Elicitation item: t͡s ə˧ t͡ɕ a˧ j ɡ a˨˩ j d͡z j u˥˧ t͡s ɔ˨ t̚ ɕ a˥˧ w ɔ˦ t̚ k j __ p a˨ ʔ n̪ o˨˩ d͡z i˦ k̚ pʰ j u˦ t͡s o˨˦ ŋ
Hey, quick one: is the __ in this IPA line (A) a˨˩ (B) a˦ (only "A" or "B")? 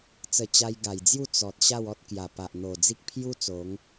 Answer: A